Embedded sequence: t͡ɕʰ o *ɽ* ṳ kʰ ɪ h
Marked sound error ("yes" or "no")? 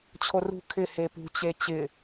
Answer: yes